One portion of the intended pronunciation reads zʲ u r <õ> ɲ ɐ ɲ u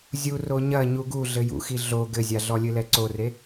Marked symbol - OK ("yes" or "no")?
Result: no